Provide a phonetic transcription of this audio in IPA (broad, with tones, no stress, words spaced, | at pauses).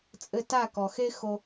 t͡sʼɘ˧ ta˦˨kɔ˨xe˦xo˧